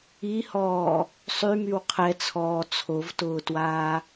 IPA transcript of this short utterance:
i h ɔː | sˤ y m y w qʰ ɛ t͡sʰ ɔː t͡sʰ o v t ʊː t w aː

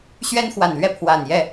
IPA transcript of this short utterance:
ɕ ɥ ɛ˦ n x w a˨˩ n l ɥ ɛ˥˨ pʰ w a˨˩ n j ɛ˥˨

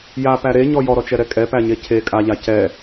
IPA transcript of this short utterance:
j a p æ ɾ e ɲ ɔ j ɔ ɾ ɔ t͡ʃ ɛ ɾ ɛ kʼ ɛ p æ ɲ e cʰ e kʼ a ʎ a c ɛ

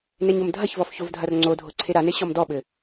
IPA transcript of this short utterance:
n e ɲ o m dʱ ɐ ç v ɔ f ç o v dʱ ɐ r ŋ͡ǀ o dʱ o ǀʰ e ɾ a n e ɕ ɔ m d ɔ ɓ ɘ

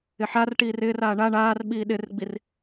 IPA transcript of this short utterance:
ɪ ħ a r ʈ iː r ɪː r aː ɳ a ɳ aː r ɓ iː ɗ ɪ r ɡ͡b i r

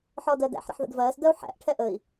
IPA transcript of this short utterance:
ħ ɔ d ɜ d æ̰ ħ ɾ ə̰ ħ ð ə̰ d v ɜː s d ɜ u̯ ħ æ̰ ʔ ʈʰ ɛ ʔ ə i̯

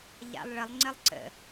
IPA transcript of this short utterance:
ʎ a̰ lˠ ɭ ə lˠ ŋ͡ǀ ə lˠ ǀ ə̰

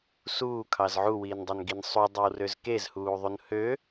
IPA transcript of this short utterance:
s uː kʰ ɑ z ʕ u w iː n dˤ ø n ɡ i n sˤ u dˤ o w r ø z k e z h uː ðˤ u n h ø

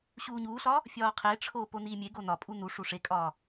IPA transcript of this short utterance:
ɕ uː ɲ uː ɬ ɒ | fʲ ɒː qʰ e ʈ͡ʂʰ oː p o n iː mʲ e ɡ o n ɒ pʼ u n̪ u ʂ u ʂ e kʼ ɒː

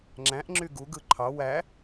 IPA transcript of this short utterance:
ŋ͡ǁ æ̃ ʔ ŋ͡ǁ y ɡ u ɡ ɯ ǃʰ ɑ w æ

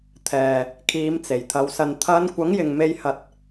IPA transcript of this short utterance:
t̪ʰ ɛː˨˩ | kʰ iː˨˧ m t͡s e˨˩ j t̪ʰ ɐ˨˧ w s ɐ˧ n t̪ʰ ɐ˨˧ n kʷ ɐ˨˥ ŋ j ɪ˨ ŋ m e˧ j h ɐ˧ t̚

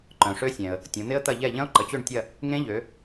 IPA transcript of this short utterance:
ǃ œ̃˩ ʂ ø˦˥ sʲ ɛ̃˩ ə̯ | tʲ õ˩˧ n̪ ɪ˦˥ ə̯ t̪ ɐ˦˨ ʎ ɛ˦˨ ʎ ɐ̃˦˥ ʊ̯ ǃ ə˩˧ t͡ɕ ø˦˨ ɳ tʲ ɐ˦˨ | ŋ ẽ˦˥ ʎ ø˩˧

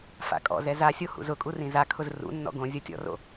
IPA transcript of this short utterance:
f a̰ kʼ ɔ̰ z ɛ z a sʲ o h ṵ z ʊ kʼ u r ĩ z a kʰ ʊ z r ṵ nː ɔ̰ ɡ õ zʲ o tʲ ɔ̰ r o̰

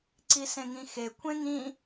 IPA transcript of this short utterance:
ǀ i s ẽ ŋ ĩ x e kʷʰ ẽ ŋ ĩ

